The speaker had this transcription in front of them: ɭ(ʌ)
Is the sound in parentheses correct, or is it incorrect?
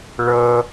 correct